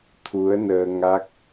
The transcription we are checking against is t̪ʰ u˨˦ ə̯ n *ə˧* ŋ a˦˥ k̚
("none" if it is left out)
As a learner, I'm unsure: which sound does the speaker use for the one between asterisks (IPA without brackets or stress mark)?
əː˧